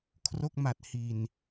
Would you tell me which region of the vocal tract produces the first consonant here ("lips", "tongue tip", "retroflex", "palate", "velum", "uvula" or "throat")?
velum